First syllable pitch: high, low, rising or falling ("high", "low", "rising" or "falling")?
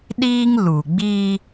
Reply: high